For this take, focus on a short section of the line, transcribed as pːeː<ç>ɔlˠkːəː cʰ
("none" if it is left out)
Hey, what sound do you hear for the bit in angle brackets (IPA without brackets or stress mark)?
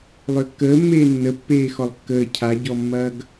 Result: x